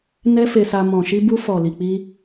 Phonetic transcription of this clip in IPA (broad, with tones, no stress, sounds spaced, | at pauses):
n ɛ˦ f e˧ s a˧ m ɔ̃˨ ʃ i˧ b u˧ f ɔ˨ l i˨ k͡p i˧